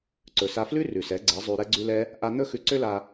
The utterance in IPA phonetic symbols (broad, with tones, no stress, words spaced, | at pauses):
ǀɵ˨sa˧flʉ˦ rʉ˨sɛ˨˦ ɡ͡ǀɛ˨˦zˤʉ˧ ɾɛ˦ɡ͡ǀʉ˦lɛ˦ | ʔa˦ n̪ɵ˦xʉ˧ǀø˦la˧